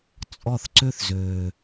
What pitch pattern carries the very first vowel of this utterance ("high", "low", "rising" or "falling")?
falling